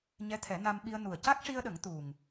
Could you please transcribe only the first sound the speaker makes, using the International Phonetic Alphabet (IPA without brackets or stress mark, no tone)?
ɲ